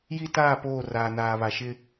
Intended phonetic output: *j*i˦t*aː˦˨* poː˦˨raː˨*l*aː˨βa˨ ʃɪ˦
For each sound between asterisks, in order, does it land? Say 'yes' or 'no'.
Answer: yes, yes, no

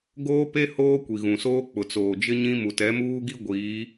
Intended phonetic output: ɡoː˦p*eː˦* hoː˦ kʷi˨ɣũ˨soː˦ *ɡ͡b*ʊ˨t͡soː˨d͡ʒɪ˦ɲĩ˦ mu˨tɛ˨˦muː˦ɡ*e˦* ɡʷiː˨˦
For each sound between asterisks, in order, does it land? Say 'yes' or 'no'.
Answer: no, no, no

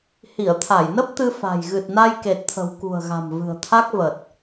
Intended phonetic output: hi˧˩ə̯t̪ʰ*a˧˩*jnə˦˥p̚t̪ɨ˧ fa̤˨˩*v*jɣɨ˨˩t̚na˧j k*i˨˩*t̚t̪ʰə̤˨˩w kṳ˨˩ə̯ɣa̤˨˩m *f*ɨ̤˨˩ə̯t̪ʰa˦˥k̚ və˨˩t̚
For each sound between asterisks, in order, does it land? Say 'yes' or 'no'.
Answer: yes, no, no, no

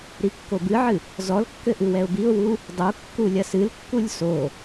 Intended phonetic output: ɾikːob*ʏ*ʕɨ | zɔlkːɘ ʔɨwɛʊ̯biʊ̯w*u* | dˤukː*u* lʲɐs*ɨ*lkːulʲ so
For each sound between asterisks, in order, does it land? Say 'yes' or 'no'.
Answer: no, yes, yes, yes

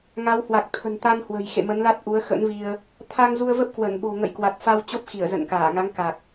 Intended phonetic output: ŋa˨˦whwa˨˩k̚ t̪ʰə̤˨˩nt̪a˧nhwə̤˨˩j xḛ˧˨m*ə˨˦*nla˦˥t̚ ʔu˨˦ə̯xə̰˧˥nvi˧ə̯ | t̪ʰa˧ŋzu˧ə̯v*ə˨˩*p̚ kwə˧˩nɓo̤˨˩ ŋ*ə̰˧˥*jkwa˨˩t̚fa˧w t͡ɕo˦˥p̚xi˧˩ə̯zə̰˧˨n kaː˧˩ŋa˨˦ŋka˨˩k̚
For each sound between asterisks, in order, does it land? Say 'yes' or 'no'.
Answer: yes, no, no

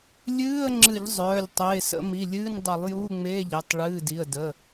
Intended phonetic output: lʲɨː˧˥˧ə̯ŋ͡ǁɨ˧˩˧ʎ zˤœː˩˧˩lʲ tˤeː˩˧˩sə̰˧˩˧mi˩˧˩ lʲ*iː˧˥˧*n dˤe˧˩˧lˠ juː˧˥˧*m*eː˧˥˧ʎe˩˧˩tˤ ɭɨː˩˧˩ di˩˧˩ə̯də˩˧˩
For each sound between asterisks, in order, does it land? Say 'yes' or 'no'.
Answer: no, no

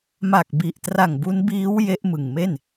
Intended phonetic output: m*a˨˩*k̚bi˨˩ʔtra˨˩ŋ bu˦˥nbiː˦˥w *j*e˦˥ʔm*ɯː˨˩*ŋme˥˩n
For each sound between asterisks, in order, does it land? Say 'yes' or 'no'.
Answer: yes, yes, no

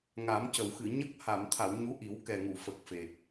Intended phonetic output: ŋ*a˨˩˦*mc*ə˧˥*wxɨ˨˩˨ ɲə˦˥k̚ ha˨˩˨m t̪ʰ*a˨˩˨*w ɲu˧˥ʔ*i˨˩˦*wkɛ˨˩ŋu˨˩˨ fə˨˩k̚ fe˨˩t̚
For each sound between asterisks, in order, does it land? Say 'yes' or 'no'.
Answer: yes, no, yes, yes

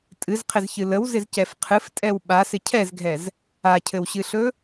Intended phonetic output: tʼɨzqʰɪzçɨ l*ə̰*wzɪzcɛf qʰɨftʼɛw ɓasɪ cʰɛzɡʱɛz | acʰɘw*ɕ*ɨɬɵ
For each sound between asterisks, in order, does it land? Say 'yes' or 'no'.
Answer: no, yes

